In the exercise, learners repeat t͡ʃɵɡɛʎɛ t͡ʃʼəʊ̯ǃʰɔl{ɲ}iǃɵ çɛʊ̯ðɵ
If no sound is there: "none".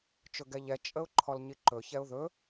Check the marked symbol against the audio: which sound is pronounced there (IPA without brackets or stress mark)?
ɲ